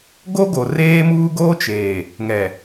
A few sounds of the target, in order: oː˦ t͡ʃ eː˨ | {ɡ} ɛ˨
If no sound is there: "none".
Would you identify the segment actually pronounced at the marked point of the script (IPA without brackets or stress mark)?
ŋ